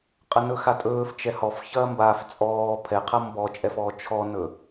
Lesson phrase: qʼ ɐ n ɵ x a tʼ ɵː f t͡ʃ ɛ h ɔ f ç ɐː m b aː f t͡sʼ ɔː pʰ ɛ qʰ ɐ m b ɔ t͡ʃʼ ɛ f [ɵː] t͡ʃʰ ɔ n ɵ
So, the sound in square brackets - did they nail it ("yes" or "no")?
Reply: no